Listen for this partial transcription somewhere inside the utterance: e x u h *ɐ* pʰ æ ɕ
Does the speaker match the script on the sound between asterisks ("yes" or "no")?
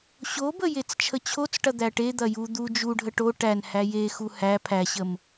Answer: no